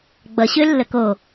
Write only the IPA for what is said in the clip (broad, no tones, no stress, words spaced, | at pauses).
ɡ͡bʌ ɕølːəko